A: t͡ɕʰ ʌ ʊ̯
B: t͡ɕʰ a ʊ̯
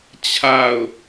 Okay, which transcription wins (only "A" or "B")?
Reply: B